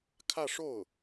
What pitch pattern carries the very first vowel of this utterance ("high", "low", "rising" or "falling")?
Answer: falling